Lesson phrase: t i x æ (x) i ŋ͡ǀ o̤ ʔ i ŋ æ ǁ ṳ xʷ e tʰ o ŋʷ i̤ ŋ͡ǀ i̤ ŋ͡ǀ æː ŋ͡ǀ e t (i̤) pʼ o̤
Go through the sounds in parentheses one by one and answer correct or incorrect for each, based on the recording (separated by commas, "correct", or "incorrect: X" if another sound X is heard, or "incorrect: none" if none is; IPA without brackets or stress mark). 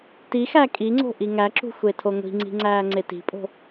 incorrect: kʼ, correct